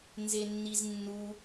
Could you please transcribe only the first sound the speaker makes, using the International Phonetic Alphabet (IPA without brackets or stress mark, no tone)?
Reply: n